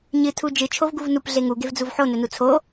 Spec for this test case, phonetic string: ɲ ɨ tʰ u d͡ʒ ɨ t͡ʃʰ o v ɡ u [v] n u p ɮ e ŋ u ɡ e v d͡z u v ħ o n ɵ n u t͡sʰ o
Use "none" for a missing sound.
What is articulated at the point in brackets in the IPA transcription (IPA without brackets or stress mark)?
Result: v